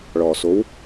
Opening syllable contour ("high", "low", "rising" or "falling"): low